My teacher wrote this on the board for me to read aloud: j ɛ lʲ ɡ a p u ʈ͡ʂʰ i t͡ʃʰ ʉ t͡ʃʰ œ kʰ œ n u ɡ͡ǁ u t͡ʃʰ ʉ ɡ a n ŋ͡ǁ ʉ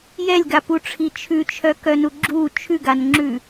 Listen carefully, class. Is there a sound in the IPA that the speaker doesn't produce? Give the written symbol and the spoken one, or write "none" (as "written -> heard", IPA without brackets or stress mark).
kʰ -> k